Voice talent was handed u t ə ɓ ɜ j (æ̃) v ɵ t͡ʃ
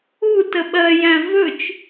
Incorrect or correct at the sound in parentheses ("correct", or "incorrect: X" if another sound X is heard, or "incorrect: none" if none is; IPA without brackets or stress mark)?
correct